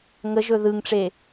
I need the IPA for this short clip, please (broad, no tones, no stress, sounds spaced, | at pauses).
ŋ ə ʒ ɵ ð ɯ ŋ ʈ͡ʂ e